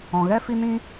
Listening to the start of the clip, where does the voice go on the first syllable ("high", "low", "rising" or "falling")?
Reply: low